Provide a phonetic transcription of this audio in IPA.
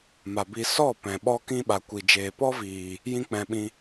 m a˨ b i˧ s ɔ˦˨ p ɛ̃˨ ɓ ɔ˦ k ĩ˦ ɓ a˨ kʷ i˨ d͡ʒ eː˨ p ɔ˦ v iː˨ | j ĩ˦ k͡p ɛ̃˧ ɓ ĩ˧

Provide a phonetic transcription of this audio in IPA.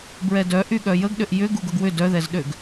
b ɹ ɛ d œ ʔ y ɠ œ j ə ɡ ɗ ʏ ʔ j ʏ ɡ u ɡ ʊ ɡ w ʏ d œ ð ɛ z ɗ ø ɡ

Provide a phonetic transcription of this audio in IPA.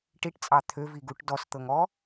ʈ i ʈ t͡sʼ ɑ t̪ʰ ø v i ɡ u ʈ d ɔ s t̪ ɤ ŋ ɔ

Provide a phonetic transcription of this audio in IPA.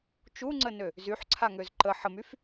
t͡ʃ u ŋ͡ǀ ə n ø | z y ħ ǀʰ a ŋ ø z ǃ ə ħ ə m y f

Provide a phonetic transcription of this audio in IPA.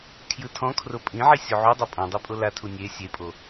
kʰ j ɯ tʰ ɔ̃ kʰ r o pʼ ĩ ʕ i sʲ o ʕ u dˤ a pʼ ɔ̃ dˤ e pʼ o l a tʰ u nʲ e sʲ e pʼ o

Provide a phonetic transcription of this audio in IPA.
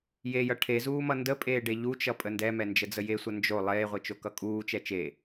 j e j ʌ ʈʰ e z uː m ʌ n d ə pʼ eː ɖ e ʎ u t͡ʃ ʌ pʼ ə n d ɛ m ɛ n d͡ʒ ə d͡z ə j e sʷ ʌ n d͡ʒ o lˠ eː ʁʷ i t͡ʃ o k ʌ kʼ uː t͡ʃ ɛ t͡ʃ e

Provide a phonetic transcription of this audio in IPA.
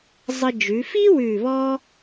zˤ ə˧ d͡ʒ ʉ˩˧ f i˥ w ʉː˧˩ β ɔː˥

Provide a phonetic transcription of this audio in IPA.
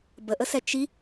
b ə ʔ ə s ɛ t͡ʃ i

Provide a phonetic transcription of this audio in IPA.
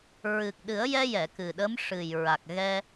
ɹ ɨ˨˩ k̚ ɗ ɨ˨˩˦ ə̯ j ɛ˧ j ɛ˨˩˨ k ɨ˨˩ ɗ ə˧˥ m ʂ ɨ˨˩ j ɹ a˨˩ k̚ ɣ ɛ˧

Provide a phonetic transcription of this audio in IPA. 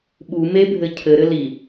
ɓ u m e bʱ ɘ cʰ ɘ ɾ ɘ l i

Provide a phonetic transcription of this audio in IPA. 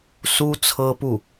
s u˥ t͡sʰ ɤ˥ p u˥˩

